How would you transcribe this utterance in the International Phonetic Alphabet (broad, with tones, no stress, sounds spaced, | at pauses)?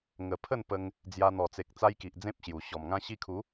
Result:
ŋ ə˨˩ pʰ ə˥˧ n p ə˧ ŋ | d͡z j a˧ n̪ ɔ˨˩ t͡s e˨ k̚ t͡s a˦ j k i˨ ʔ d͡z ẽ˦ p̚ ɕ j u˨˩ ɕ ɔ˨˩ m ŋ ã˦ ɕ i˧ kʰ u˨˦